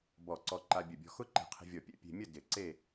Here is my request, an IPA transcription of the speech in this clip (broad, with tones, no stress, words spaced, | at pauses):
bɔ˧˩ǀɔ˧ ǃa˧bʲə˧˩bʲɔ̤˧ xʊ˥ ǃɛ̤˧˩qʰe̤˧vʲɔ˧˩pʲɛ̰˥˧ pʲe̤˧mʲə˥˧ dɪ˧˩ǀe˥˧